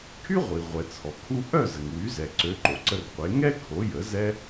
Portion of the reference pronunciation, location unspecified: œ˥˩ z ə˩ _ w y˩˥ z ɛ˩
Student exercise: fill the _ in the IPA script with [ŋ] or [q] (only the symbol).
ŋ